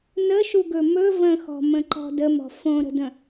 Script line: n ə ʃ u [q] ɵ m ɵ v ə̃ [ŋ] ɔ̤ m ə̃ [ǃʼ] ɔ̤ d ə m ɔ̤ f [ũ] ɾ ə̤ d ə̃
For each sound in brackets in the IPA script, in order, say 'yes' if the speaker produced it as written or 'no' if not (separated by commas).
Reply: no, no, no, no